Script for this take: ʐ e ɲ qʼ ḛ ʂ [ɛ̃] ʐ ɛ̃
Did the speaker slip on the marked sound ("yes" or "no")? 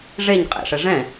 yes